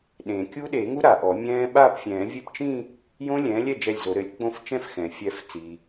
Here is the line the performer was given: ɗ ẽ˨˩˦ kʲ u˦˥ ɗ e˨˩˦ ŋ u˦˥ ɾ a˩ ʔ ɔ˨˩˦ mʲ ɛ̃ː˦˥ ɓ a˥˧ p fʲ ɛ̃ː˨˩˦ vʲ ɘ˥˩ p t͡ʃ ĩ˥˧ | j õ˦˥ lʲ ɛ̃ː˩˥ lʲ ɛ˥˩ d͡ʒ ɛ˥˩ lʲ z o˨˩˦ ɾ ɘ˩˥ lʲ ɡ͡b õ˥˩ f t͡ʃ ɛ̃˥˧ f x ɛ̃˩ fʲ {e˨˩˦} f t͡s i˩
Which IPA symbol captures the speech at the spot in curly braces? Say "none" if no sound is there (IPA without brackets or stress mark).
ɛ˨˩˦